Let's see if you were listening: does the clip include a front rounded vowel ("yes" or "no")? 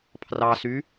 yes